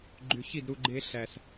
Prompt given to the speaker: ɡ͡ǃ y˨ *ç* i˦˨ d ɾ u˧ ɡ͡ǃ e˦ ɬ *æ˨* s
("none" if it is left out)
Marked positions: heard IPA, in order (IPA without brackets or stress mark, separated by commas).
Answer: ç, æ˨